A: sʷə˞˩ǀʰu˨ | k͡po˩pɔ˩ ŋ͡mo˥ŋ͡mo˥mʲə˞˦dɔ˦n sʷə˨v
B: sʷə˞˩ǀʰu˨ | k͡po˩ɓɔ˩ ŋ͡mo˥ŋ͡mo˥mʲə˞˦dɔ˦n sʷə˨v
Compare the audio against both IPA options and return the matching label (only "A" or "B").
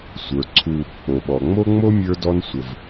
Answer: B